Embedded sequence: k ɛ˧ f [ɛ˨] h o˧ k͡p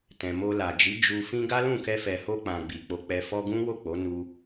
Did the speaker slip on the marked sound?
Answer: no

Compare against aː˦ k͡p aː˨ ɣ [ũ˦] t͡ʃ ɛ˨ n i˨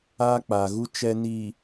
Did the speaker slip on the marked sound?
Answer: yes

